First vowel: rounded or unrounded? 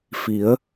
unrounded